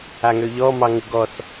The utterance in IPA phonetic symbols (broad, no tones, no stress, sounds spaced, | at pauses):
a ŋ ø ʎ ɔ m ɑ ŋ u ɡ ɔ θ